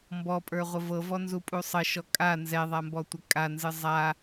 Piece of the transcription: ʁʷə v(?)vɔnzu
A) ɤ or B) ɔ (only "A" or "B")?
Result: A